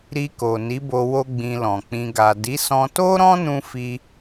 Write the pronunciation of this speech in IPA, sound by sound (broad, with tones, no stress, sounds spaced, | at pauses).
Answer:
ɾ i˧ k o˨ n i˨˦ b o˧ w o˦ ɡ͡b ĩ˧ l ɔ̃˨ k͡p ĩ˧ ɡ a˨ d i˨˦ s ɔ̃˧ t o˦ ɾ ɔ̃˦ n ũ˧ f i˧